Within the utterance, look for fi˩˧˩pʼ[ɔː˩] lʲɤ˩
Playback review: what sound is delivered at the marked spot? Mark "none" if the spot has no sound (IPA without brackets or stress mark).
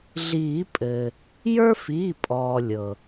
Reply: ɔː˩